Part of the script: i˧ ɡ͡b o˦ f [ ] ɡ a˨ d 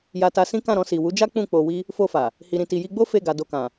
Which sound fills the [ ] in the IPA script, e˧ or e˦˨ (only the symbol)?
e˦˨